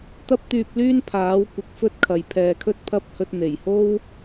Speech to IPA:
t̪ɐ˥p̚t̪yː˧p̚lyː˥n pʰaː˨˥w kʷɪ˨˥k̚fɵ˥t̚kʰɐ˨j pʰɛː˨kʰɵ˥t̚pʰɐ˥p̚hɵ˧t̚ n̪e˨˩jho˥w

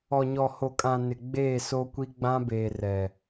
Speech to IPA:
ɔ˨ɲɔ˨ho˨kʼã˨ nɪ˨ ɡ͡beː˦˨so˦kʷi˦ ɡ͡bã˦beː˨ rɛ˨

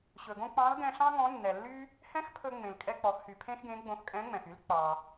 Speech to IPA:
ɕɵ˩ɡõ˥ k͡pɑ̃˧˥lɡɛ̃˧ɬɑ̃˥ ŋɔ̃˧˥nːɛ˩lːy˥ | hɛ̃˥xpʰɵ˧ ŋ͡mẽ˩lkʼɛ˧k͡pɔ˩˧x hy˩pʰẽ˥xɡẽ˧˥ ɡ͡bõ˧xkʼɛ̃˧˥ŋ͡mɛ̃˩x y˧˥l k͡pɑ˩

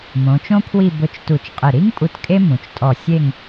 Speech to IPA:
mõ˩˧t͡ʃõ˥pʰwi˥˧ bʊ˧t͡ʃ tu˧˩t͡ʃqʼɪ˧˩ ɾi˥ŋpʼu˧t kʼe˥mũ˩˧t͡ʃtʼɔ˧˩ sʲe˥˧ŋ

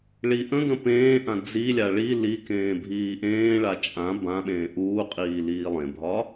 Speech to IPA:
ɭi ʔə̃ɡə̃ pẽːʔã d͡zilʲa ɭi likẽː bʱiːʔẽːɭa t͡ʃʼã bãɓẽː ʔuːqʼiː liːlˠẽbʱɒ

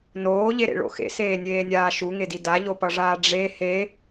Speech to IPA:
noːʎeɾḛɭo̰ xḛseːnʲeːnʲaː ʃuŋedi daʎopʌʐaː ɖ͡ʐe he

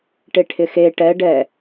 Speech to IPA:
ʈeʈʰɪxe ʈɛ ɖɛ

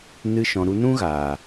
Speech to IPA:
nɨ˧ʃɔ̃˨ ɾu˧nũ˦ɣaː˨

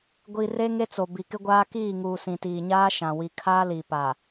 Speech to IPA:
ɡʷi˨ re˦ŋe˦t͡so˨ bi˨kɪ˦ɡʷaː˦ kiː˦˨ŋuː˨ sĩ˨tiː˨ɲaː˦ʃã˨ wi˨kʰaː˦li˨ pa˨

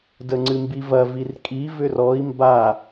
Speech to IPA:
dəŋ͡ǀɨmbivɐ virkʼi vʏrɔi̯ mba

